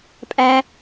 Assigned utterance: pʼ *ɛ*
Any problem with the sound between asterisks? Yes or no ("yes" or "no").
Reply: yes